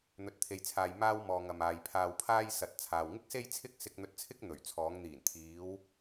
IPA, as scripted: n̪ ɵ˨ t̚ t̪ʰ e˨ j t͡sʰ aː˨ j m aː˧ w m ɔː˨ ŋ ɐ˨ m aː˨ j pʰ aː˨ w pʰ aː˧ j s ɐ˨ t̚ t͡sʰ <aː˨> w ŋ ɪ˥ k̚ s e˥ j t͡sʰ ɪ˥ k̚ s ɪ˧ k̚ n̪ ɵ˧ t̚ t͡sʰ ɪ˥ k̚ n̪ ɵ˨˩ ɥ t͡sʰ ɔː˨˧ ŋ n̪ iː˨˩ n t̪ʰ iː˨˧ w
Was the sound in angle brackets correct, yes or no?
yes